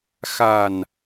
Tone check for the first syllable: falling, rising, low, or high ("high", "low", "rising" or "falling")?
low